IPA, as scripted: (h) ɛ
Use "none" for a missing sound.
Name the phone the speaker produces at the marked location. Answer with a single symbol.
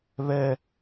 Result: β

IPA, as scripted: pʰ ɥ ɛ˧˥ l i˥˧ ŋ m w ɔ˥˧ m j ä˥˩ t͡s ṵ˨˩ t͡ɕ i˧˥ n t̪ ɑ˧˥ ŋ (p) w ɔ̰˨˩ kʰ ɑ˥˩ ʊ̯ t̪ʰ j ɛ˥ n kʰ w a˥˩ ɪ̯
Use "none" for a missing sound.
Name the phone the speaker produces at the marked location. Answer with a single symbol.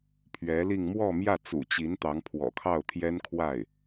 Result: pʰ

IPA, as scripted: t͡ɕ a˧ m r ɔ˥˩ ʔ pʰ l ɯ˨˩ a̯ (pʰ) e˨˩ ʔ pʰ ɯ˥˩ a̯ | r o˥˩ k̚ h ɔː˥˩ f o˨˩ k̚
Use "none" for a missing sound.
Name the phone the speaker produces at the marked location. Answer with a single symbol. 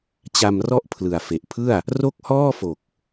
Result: f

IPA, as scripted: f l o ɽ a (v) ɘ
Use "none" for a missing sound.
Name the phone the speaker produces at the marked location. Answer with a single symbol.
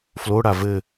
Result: v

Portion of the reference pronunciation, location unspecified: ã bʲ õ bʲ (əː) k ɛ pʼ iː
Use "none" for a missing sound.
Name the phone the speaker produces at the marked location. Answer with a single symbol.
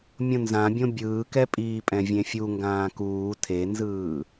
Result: ɯː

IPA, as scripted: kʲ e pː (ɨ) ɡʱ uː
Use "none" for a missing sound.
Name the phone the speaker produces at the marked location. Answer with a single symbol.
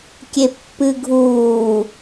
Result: ɨ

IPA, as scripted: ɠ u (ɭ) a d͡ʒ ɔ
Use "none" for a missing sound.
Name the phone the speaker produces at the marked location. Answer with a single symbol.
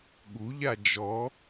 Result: ʎ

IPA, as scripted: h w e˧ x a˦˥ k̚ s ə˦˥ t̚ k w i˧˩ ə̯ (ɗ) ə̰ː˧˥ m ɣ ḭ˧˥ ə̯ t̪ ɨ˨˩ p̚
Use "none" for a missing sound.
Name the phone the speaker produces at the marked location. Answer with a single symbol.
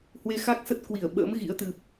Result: ɓ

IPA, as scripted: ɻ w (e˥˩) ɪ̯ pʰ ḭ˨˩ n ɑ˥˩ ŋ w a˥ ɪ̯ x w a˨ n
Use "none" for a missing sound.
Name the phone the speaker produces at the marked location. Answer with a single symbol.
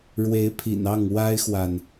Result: e˧˥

